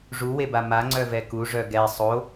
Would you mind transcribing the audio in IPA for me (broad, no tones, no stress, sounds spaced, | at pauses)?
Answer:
ʐ u w e b a m a ŋ͡ǀ œ v ɛ k u ʐ œ ɡ ɛ sˤ o